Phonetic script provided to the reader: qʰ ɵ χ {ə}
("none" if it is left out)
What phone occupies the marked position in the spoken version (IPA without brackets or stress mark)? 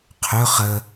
ə